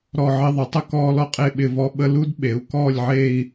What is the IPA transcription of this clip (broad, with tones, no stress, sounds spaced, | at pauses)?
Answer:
ɾ ɔ˥˧ ʕ ɪ˥ ðˤ ə˩˥ tˤ ə˥ k ɔː˥ l ɔ˥ qʼ e˥˧ ɓ ɪ˥˧ v ɔ˥ ɓ ə˥ l u˥ d ɓ e˩˥ u̯ k ɔː˥˧ lʲ ʕ e˥˧ i̯